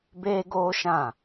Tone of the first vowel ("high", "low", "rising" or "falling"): high